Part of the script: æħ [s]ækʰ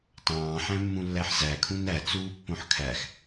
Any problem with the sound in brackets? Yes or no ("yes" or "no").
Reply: yes